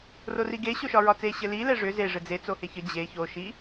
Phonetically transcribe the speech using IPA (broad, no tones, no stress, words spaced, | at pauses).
roriɡe ɕoʃɒɹɒt͡se ɕɘli lɛʐʏ ze ʐɘd͡ze t͡soheçɘ d͡ʑe ço ʃi